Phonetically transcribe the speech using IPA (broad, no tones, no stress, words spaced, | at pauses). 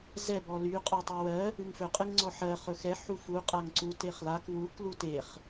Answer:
zɛ bɔly qʼɔtˤywɜ | ɨŋfɵ qʼɨŋŋ͡ǀɔħɜ χɵxɛ ħufu qʼaŋǀu teχlak wuk luteχ